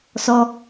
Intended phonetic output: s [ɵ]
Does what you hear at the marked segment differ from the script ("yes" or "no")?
yes